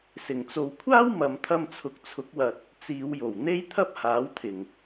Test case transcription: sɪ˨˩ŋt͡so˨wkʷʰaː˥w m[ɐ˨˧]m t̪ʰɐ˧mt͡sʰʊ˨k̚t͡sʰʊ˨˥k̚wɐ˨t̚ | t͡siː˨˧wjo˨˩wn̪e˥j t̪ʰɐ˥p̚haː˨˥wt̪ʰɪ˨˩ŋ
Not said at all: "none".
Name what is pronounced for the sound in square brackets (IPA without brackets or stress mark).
ɐ˨˧